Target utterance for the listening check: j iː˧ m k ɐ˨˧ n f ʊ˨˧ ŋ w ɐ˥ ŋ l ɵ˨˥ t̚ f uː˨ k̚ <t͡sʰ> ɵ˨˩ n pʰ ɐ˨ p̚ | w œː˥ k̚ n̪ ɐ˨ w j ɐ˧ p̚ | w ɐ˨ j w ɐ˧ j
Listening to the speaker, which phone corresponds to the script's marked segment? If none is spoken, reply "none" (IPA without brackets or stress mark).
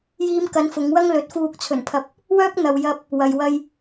t͡sʰ